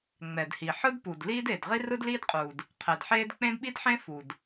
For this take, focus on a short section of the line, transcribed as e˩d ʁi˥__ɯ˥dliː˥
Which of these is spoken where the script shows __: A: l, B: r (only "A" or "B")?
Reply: B